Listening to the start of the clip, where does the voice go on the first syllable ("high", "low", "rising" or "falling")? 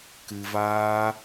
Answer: low